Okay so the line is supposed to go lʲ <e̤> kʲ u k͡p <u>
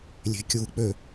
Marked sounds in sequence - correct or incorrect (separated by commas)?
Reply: correct, incorrect